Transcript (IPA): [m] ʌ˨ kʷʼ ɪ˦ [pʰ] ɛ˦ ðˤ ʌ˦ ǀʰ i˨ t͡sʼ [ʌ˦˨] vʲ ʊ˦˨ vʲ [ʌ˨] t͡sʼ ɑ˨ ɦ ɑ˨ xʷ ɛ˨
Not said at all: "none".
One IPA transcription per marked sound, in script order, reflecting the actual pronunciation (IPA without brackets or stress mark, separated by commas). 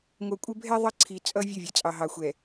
ŋʷ, bʱ, ʌ˦, ʌ˨